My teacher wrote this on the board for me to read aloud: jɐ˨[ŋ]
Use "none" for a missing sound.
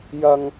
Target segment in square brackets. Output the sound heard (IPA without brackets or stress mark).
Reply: ŋ